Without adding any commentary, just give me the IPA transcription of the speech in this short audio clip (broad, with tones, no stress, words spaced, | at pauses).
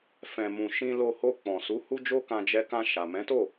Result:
fɛ̃˨mũ˨ ʃĩ˧lo˧ho˧ k͡pɔ̃˨su˨˦ hu˦d͡ʒo˦kã˧ d͡ʒɛ˧kã˧ ʃa˨mɛ̃˨˦to˦˨